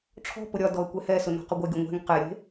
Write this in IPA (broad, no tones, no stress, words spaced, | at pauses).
ʈ͡ʂʰɔ̤pʊ ɾʲɒdɔə̯ kʷɛhɛsʊ nɔ̤qʏɡʷɛɡʲʊ ŋʷɛ̤ŋ qeɾʲe̤